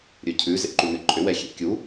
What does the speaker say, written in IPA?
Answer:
ɾʲ ɵ cʰ ʉ z ḛ ǃ u n̪ ɪ ǃʼ ʏ w ɛ xʲ ḛ kʲ u

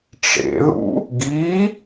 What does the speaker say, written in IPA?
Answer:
ʈ͡ʂ ḛ ð ṵ | ɡ i

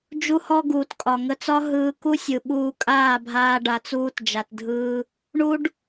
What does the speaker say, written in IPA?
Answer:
d͡ʒ u˧ h ɔ˧ ɡ uː˨ t kʼ ɒ˨ ŋ ə˧ t͡s ɒ˦ ɦ ɯː˧ k u˦ sʲ ɯ˨ ɓ uː˧ kʼ aː˦˨ bʱ aː˧ ɖ a˨ t͡s uː˧ t d͡ʒ a˨ t dʱ ɯː˧ | ɳ u˦ ɖ

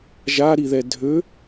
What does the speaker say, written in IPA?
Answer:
ʒ a ɾ i ð ɛ dʱ ø

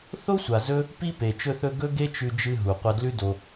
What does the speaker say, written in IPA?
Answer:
θ o˦ sʷ a˨ z ɵ˦ | p i˦ p e˨ t͡ʃ ɵ˧ θ ɵ˧ ɡ ɵ˦ ɡ e˦ t͡ʃ ʉ˧ d͡ʒ ɨ˧ ɦ u˨ qʷ ɐ˧ d l ʉ˦ d o˧

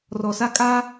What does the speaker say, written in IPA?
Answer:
r ɔ˨ s a˦ kʼ aː˦

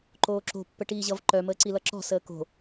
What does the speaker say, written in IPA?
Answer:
ǃ oː ǁ o̤ pː ə ʈ iː ʑ ʌ v ǃ œ m əː ǀ i l ʌ ǁ ɔ̤ s əː k o̤

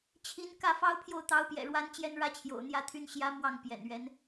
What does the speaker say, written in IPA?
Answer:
t͡ɕʰ i˧˥ n k ä˥˩ f ɑ˥ ʊ̯ pʰ j o˥˩ ʊ̯ t̪ ɑ˧˥ ʊ̯ p j ɛ̰˨˩ ɻ w a˥ n t͡ɕ j ɛ˥ n ɻ ä˥ t͡ɕʰ j o̰˨˩ ʊ̯ n̪ j ä˥˩ t̪ʰ y˥ n ɕ j ä˧˥ m w ɑ˥˩ ŋ p j ɛ̰˨˩ n ɥ ɛ˧˥ n

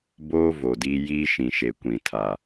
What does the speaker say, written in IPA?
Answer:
b oː˦ v o˨ d iː˦ j iː˦ ʃ ĩ˨ ʃ e˨ kʷ ĩ˨ tʰ aː˨

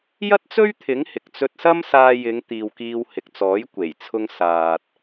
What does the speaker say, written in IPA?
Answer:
j ɐ˥ t̚ t͡s ɵ˥ ɥ t̪ʰ ɪ˨˥ ŋ h ɪ˨ k̚ t͡s ɵ˥ t̚ s ɐ˥ m s aː˧ j ɪ˨˧ ŋ t̪ iː˨ w k iː˧ w h ɪ˨ k̚ t͡s ɔː˨˥ j kʷ e˨˩ j t͡sʰ ʊ˧ ŋ s aː˨ t̚

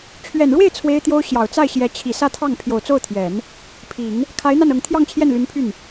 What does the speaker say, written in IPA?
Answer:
t͡ɕʰ ɥ ɛ˨˩ n ɻ w e˥˩ ɪ̯ t͡sʰ w e˥ ɪ̯ t̪ j o˥ ʊ̯ ɕ j ɑ˨˩ ʊ̯ t͡s a˥˩ ɪ̯ ɕ j ɛ˧˥ t͡ɕʰ i˨˩ s ä˥˧ t̪ʰ ɑ˥˩ ŋ pʰ j o˨˩ ʊ̯ t͡s o˥˩ ʊ̯ t̪ʰ j ɛ˨˩˦ n | pʰ i˨˩˦ ŋ | kʰ a˧˥ ɪ̯ n̪ a˥˩ n ɤ˨˩ ŋ t̪ʰ j ɑ˥˧ ŋ t͡ɕʰ j ɛ˥˩ n l y˧˥ n pʰ y˥˩ n

